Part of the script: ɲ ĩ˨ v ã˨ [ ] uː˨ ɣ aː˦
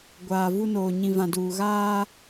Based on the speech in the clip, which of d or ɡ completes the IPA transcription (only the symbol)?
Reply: d